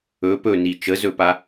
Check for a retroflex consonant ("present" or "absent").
absent